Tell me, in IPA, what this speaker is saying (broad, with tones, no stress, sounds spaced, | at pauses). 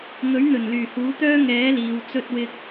ŋ ɵ˨˥ ɥ n̪ ɵ˨˩ n l yː˨˩ h uː˨˥ t̪ œː˥ ŋ ɛː˨˥ l iː˨ w t͡s ɵ˧ t̚ w ɪ˧ k̚